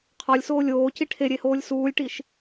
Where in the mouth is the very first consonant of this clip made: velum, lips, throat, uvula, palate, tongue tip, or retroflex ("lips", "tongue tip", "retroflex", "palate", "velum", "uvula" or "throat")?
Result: uvula